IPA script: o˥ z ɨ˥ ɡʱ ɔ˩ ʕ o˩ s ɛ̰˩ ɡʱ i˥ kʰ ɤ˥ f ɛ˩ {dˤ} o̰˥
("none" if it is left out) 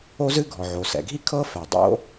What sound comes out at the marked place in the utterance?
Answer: dˤ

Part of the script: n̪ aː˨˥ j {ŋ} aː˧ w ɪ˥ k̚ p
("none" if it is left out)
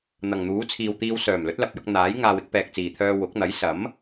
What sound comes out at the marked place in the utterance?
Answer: ŋ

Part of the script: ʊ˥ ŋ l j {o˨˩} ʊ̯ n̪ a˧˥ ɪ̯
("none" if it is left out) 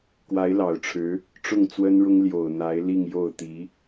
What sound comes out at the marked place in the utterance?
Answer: o˨˩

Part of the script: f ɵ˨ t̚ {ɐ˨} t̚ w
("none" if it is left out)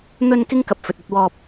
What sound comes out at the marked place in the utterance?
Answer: ɐ˧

